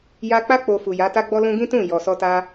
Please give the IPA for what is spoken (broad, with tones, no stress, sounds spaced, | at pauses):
j a˧ k͡p a˦ k͡p o˧ f u˨ j a˨˦ t a˧ ɡ͡b ɔ˧ l ũ˦ ɡ ĩ˦ t ũ˦˨ j ɔ˨ s ɔ˧ t a˧